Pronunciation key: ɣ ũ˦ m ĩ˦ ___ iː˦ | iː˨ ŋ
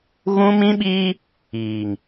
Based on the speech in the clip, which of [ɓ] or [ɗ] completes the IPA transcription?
ɓ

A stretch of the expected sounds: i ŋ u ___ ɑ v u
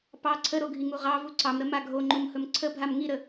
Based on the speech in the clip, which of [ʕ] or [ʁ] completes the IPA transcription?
ʁ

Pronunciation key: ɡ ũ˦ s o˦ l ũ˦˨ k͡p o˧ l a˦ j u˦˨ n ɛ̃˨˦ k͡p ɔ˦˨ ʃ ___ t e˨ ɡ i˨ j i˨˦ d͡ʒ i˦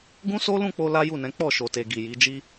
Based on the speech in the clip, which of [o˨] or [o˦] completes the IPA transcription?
o˨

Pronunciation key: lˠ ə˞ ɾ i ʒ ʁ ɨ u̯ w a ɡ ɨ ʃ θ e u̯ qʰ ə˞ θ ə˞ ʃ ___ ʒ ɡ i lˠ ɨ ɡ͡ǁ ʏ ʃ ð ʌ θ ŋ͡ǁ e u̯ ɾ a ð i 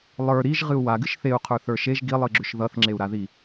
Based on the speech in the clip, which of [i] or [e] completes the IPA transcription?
e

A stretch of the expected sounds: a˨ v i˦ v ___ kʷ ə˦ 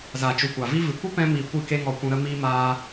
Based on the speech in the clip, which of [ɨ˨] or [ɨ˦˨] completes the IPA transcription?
ɨ˨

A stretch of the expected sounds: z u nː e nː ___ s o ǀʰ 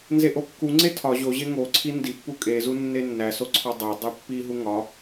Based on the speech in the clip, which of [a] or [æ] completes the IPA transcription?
æ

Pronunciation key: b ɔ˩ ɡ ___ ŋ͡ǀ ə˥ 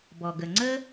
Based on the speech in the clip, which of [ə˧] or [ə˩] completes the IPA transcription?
ə˩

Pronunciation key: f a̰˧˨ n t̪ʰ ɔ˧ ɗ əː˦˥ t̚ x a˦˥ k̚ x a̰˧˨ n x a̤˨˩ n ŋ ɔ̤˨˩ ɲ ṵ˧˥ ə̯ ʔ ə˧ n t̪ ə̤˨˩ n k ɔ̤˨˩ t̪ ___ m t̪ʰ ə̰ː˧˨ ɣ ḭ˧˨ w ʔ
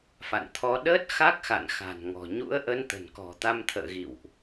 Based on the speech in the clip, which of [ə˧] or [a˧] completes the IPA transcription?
a˧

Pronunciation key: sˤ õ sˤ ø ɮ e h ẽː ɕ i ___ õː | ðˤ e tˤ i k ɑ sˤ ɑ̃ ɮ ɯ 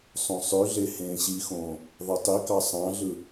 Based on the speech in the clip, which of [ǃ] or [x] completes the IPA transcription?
x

